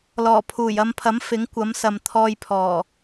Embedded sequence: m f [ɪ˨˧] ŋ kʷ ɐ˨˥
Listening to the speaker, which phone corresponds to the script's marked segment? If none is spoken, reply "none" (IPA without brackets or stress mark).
ɪ˨˥